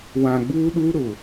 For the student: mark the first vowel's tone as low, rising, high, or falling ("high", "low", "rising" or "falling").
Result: low